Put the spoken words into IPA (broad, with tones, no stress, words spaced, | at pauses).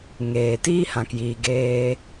ŋeː˨ tiː˦hã˨kjiː˨ɡeː˧